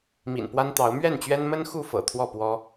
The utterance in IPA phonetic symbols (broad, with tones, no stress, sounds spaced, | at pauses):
m ḭ˨˩ n p w a˦ n t̪ ɑ˨˦ ʊ̯ m ɥ ɛ˥˨ n t͡ɕ ɥ ɛ˦ n m ə˦ n x u˥˨ f ɤ̰˨˩ t̪ʰ w ɔ˥˨ p w ɔ˦